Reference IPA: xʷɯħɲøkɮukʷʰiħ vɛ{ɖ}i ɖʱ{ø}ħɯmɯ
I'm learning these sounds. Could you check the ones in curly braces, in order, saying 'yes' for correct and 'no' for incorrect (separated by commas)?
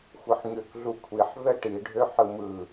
no, yes